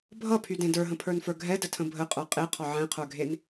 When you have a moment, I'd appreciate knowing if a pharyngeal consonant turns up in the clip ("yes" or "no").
yes